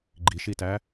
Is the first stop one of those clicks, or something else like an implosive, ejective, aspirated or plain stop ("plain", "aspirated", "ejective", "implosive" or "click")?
click